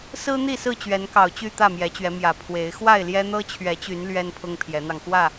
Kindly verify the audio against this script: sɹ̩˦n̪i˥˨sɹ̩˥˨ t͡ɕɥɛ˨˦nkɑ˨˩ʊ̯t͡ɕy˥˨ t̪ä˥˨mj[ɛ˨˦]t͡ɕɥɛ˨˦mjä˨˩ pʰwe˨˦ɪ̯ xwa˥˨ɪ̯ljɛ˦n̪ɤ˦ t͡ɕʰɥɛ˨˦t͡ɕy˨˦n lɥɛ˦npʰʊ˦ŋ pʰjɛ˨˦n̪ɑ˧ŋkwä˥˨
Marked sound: correct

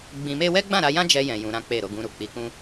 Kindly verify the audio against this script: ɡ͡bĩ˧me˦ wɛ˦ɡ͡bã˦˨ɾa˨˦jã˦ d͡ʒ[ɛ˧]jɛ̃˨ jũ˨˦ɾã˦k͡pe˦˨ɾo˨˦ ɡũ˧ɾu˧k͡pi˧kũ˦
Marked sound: correct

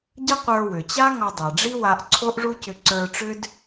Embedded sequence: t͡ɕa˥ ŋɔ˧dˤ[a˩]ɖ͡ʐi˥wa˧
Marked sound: correct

